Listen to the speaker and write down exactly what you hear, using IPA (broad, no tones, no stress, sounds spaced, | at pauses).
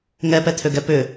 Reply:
ŋ ɛ p ɛ t̪ʰ ø ɡ ɛ p ʏ